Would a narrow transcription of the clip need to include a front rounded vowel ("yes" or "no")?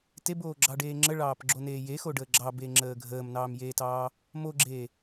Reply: no